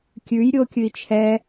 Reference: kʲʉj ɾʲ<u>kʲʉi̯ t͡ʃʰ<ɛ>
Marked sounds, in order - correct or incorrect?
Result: incorrect, correct

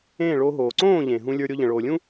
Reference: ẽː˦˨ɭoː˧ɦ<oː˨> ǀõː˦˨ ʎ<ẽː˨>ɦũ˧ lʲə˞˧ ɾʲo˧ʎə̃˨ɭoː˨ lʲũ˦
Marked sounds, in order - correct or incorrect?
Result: correct, correct

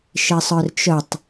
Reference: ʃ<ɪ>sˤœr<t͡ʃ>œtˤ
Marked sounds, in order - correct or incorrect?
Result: correct, correct

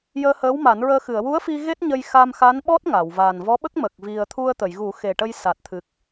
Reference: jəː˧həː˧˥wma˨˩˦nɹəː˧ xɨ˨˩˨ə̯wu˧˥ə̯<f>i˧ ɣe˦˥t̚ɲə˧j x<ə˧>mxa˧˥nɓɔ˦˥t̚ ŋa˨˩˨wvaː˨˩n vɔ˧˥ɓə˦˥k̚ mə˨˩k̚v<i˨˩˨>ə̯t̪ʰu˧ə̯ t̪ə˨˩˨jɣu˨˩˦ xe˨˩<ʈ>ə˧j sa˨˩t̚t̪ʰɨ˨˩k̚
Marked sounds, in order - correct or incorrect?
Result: correct, incorrect, incorrect, correct

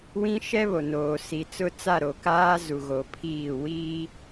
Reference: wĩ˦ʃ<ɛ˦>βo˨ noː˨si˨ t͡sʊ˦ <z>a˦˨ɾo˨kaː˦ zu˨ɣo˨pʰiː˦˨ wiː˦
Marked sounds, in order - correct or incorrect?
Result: correct, incorrect

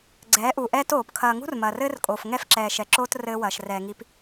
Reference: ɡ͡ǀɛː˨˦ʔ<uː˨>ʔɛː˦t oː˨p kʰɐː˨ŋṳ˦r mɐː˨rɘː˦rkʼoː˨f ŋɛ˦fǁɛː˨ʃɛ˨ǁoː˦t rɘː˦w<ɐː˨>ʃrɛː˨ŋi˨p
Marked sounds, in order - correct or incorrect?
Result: incorrect, correct

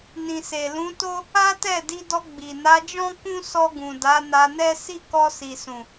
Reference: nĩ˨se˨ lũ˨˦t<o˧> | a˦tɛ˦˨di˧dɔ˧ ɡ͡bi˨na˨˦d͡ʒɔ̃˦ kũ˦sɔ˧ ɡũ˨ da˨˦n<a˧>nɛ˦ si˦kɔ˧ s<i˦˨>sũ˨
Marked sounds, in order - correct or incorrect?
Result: incorrect, correct, incorrect

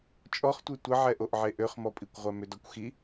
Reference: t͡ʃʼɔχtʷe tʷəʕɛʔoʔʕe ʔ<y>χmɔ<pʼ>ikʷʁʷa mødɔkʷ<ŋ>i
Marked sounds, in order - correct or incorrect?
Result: incorrect, correct, incorrect

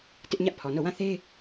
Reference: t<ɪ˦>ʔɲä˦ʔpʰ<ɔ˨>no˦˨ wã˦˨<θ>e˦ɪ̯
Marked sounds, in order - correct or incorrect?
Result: correct, correct, correct

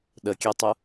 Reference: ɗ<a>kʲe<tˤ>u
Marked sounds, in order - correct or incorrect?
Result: incorrect, correct

